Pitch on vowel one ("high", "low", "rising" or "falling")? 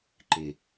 low